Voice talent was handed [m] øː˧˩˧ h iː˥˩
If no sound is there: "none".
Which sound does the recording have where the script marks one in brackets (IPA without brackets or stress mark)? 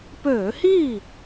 p